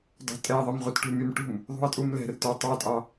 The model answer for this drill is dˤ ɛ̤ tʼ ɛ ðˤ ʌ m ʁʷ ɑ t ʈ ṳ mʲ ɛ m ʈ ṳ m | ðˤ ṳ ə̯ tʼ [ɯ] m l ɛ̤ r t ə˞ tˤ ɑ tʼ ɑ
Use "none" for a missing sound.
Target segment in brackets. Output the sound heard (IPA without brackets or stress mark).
u